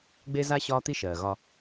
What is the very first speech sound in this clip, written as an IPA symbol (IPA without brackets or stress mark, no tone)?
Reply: ɡ͡b